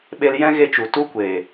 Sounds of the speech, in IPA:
ɓ e˧ l j ɛ̃˦ ɣ e˧ t͡ʃ u˨ t u˧ kʷ eː˨

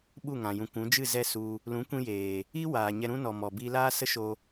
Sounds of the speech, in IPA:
ɓ u˦˨ ŋ ã˨ j ũ˨ kʷ ũ˨˦ d͡ʒ ɨ˦˨ z ɛ˦˨ s u˧ | l ũ˨˦ kʷ ĩ˧ j eː˨ | i˦ w aː˨ ɲ ɛ˧ ɾ ũ˦ n ɔ˨ m ɔ˨ b iː˧ l aː˦ s ə˦ ʃ o˧

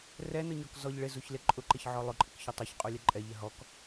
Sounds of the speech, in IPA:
r ɛ n ʊ ɲ ɔ k z ɔ ʎ ɭ ɪ z u ç l ɪ ǃʼ ʊ ǃ ɪ ç ʕ ɔ lˠ ʊ ǃʼ ɪ k ç ʊ tˤ u ç qʼ u lʲ ɛ ǃʼ ɛ ʎ ɪ ɦ ɔ k

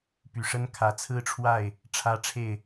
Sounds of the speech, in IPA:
p y˨˩ ʂ ə˦ n kʰ ä˨˦ t͡sʰ ɹ̩˦ ʈ͡ʂʰ w a˥˨ ɪ̯ | ʈ͡ʂʰ ä˦ ʈ͡ʂʰ e˥˨ ɪ̯

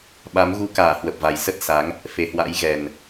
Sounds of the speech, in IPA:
ɓ a˨˦ m ɣ u˧ k aː˧˩ h w ə˨˩ p̚ v a˨˩ j s ə˦˥ t̚ s a˨˦ ŋ | f e˨˩ h w a̰˧˥ j ɣ ɛ˨˩ n

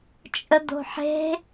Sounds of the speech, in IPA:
t͡ʃʼ ə d̪ o̤ ħ e̤

